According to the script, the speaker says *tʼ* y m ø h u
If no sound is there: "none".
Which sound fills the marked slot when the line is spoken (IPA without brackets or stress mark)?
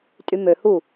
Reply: tʼ